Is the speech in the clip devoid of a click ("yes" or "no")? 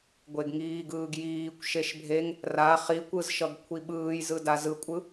yes